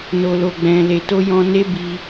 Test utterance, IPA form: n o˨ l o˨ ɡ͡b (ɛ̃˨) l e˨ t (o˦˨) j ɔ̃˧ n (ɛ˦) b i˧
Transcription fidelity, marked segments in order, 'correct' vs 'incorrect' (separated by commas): correct, incorrect, incorrect